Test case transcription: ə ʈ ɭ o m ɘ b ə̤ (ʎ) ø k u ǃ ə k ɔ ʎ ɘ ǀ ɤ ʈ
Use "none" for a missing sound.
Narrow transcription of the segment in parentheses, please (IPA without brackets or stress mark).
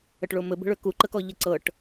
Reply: ɭ